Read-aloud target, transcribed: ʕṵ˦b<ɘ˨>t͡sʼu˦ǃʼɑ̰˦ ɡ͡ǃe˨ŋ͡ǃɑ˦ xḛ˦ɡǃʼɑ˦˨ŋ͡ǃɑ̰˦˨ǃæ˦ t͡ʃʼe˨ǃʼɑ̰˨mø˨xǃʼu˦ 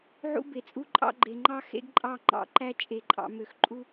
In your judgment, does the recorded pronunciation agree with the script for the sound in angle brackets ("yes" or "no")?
no